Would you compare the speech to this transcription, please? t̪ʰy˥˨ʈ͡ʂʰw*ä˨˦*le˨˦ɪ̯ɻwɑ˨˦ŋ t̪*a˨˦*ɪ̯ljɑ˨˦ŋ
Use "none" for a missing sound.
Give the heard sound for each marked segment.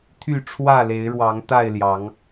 ä˥˨, a˥˨

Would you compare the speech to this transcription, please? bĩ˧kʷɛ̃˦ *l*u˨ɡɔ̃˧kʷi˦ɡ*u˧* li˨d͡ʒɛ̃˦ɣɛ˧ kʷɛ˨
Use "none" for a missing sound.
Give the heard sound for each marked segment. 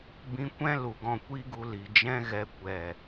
l, u˧

